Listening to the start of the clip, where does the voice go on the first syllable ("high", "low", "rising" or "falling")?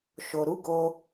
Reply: low